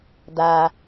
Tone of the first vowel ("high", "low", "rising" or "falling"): low